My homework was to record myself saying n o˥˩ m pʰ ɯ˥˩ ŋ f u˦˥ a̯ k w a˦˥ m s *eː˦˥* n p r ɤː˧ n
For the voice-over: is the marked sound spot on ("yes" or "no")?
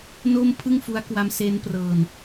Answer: yes